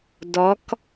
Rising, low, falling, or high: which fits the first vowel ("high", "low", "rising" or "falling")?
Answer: rising